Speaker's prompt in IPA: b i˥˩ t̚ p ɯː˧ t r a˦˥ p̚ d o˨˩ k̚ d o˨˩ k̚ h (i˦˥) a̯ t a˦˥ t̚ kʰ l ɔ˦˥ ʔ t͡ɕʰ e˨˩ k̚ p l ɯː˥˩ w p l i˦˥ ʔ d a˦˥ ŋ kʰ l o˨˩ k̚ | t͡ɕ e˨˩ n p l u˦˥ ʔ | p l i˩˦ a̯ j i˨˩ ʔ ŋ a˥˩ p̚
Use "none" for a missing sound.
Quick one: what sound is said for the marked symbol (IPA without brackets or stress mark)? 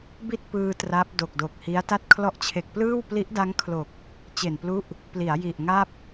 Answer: i˦˥